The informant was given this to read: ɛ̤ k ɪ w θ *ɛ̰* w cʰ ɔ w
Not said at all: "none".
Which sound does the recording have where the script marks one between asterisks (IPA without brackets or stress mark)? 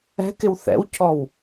ɛ̰